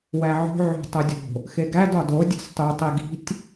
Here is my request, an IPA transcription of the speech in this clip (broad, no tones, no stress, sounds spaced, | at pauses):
w æ ʕ o̤ ʕ o̤ tˤ o dʲ o̤ | x e ɡ æ d ɒ d o dʲ e̤ s tˤ u tˤ i ɡ i̤ tʲ